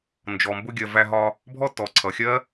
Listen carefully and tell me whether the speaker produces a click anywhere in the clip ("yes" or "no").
yes